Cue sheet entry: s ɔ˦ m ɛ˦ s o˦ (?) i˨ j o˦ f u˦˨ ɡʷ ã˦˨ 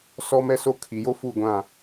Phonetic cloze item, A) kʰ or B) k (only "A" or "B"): A